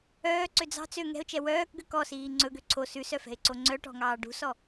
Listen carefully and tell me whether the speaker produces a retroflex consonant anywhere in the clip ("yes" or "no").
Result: yes